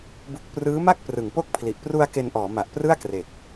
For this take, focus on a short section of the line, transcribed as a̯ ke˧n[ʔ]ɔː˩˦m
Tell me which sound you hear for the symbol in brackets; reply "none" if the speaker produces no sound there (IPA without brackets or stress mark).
ʔ